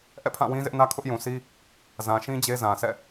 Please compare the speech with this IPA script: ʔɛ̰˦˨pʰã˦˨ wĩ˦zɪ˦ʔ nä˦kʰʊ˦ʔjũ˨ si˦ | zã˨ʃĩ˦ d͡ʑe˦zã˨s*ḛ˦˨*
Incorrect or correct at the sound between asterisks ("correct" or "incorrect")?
incorrect